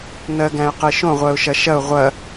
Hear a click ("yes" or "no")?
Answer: no